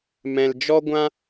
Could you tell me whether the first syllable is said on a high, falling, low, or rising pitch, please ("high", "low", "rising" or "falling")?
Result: low